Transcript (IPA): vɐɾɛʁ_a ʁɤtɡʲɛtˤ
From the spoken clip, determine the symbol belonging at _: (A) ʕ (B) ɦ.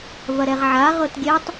A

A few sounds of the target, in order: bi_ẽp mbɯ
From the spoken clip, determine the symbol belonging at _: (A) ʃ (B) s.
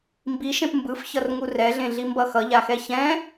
A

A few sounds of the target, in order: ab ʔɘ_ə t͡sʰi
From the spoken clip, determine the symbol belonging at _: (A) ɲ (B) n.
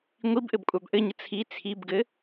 A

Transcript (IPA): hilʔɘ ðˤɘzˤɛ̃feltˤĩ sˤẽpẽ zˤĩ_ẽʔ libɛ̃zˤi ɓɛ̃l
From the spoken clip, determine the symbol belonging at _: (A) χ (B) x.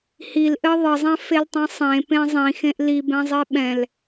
B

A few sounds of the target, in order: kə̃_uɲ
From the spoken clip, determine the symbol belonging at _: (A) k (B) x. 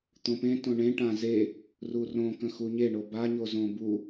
B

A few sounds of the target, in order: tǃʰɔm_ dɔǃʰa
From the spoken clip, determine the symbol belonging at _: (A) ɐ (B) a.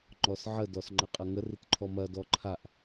A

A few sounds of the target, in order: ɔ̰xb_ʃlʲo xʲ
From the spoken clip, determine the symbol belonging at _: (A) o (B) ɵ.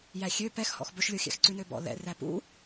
B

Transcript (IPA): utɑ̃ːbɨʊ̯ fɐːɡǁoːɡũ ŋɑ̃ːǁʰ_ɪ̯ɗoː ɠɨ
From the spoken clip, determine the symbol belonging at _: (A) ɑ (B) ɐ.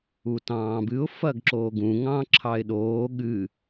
A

